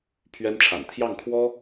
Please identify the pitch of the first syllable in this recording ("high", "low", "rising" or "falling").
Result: high